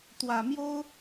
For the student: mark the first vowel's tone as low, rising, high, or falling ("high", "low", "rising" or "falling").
low